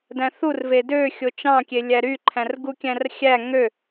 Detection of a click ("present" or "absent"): present